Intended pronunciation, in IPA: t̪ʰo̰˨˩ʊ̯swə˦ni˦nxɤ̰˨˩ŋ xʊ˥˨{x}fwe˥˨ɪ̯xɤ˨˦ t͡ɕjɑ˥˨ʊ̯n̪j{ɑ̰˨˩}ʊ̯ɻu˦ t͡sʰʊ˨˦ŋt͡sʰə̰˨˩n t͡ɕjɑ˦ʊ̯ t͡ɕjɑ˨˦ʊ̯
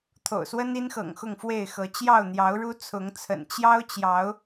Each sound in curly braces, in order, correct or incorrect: incorrect, incorrect

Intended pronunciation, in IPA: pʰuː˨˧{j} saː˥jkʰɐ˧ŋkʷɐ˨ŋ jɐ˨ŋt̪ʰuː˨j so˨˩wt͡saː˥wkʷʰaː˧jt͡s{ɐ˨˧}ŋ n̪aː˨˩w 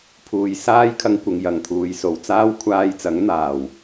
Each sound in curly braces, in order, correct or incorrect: correct, incorrect

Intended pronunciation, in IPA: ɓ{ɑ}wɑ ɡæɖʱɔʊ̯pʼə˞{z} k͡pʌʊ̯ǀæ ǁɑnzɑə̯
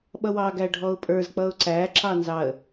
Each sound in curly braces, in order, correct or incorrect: incorrect, correct

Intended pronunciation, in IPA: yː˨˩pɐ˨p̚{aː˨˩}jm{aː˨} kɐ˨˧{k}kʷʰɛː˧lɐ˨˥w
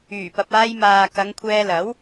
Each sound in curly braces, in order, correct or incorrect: incorrect, correct, incorrect

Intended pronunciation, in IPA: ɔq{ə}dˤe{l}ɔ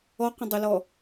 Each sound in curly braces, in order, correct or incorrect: incorrect, correct

